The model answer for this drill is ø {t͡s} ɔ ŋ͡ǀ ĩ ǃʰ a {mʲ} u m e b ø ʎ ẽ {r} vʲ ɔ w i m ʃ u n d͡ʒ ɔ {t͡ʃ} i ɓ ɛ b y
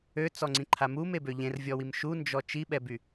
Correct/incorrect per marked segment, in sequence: correct, incorrect: m, correct, correct

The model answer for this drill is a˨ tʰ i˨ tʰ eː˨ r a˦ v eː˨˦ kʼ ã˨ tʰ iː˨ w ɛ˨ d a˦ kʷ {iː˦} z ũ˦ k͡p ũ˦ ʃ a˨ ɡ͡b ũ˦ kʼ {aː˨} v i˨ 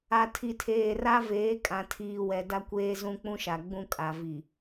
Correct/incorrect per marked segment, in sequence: incorrect: eː˦, incorrect: a˨

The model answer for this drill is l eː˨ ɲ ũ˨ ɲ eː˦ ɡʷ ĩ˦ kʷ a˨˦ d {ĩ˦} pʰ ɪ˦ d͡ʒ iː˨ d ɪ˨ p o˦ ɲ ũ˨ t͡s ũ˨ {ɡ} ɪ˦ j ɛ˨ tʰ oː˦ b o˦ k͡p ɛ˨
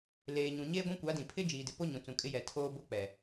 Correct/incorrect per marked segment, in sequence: incorrect: ĩ˨, incorrect: kʼ

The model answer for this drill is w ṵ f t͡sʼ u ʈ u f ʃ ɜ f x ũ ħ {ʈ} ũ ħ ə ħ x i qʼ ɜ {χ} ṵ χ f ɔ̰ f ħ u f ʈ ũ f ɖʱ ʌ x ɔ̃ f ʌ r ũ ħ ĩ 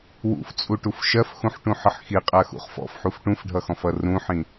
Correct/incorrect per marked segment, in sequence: correct, incorrect: x

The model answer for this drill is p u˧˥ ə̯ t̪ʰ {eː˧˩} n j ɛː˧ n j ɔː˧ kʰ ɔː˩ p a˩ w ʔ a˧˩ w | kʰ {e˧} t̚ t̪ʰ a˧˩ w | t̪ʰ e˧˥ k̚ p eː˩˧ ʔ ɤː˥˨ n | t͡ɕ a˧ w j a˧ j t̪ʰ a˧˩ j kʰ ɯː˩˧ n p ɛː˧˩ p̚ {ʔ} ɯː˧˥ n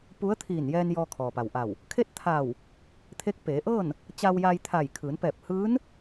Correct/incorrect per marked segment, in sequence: incorrect: iː˧˩, incorrect: e˥˨, incorrect: h

